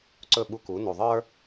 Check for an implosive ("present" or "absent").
present